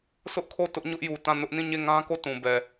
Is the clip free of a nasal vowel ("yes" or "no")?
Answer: no